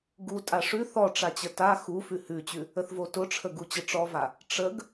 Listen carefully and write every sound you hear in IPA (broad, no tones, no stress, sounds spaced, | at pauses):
ɡ u tʼ a ʂ ʉ θ ɔ ʈ͡ʂ a t͡ɕ ə t a x u f ʉ h ʉ t͡ɕ ʉ | ə θ v o t ʊ ʈ͡ʂʰ ə ɡ u t͡ɕ ə ʈ͡ʂ ɔ v a | ʈ͡ʂ ə ɡ